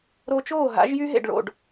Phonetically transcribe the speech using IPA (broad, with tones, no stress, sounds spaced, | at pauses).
ɾ o˧ t͡ʃ oː˥˩ ɦ a̰˩˥ ʒ j y˥ ɦ ḛ˥˩ ɖ ɭ o̰˥˩ ɖ